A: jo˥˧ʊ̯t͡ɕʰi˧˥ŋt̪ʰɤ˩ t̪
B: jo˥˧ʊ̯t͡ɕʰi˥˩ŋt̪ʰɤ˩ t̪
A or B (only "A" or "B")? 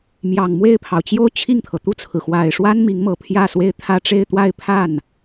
B